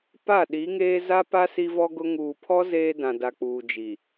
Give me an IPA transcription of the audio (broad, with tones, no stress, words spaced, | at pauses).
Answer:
pa˦˨ɗi˨˦ŋeː˦ za˦pa˦ si˦vɔ˦ɡʊ˦ ŋuː˨pʰɔ˦ zeː˦dã˨da˨k͡puː˨ d͡ʒi˨